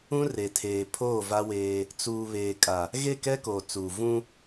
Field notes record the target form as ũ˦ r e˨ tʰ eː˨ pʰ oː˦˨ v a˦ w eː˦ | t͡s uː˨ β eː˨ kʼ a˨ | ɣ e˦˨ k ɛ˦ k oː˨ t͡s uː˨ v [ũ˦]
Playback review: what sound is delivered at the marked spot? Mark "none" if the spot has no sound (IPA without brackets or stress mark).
ũ˦